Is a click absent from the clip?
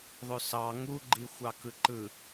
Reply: no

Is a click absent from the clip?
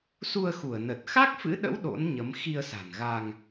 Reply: yes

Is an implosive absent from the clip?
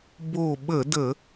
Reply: no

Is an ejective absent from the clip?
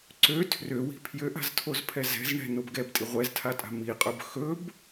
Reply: no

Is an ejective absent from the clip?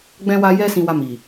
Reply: yes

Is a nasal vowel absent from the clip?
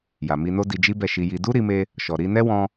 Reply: no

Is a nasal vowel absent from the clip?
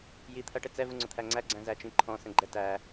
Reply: no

